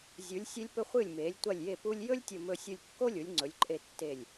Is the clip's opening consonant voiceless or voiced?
voiced